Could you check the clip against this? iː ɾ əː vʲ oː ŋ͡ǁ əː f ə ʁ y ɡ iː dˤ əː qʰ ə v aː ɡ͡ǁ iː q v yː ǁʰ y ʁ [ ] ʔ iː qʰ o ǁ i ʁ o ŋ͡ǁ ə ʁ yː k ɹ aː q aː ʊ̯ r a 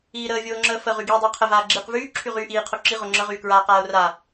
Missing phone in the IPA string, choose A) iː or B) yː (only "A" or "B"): B